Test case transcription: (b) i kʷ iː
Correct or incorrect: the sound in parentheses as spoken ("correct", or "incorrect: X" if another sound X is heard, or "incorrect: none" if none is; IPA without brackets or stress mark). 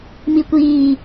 incorrect: m